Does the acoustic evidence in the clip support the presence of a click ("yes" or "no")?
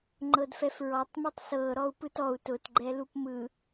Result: yes